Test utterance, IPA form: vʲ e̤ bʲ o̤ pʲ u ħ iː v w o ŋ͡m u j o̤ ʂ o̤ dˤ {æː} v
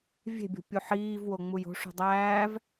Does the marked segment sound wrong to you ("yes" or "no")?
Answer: no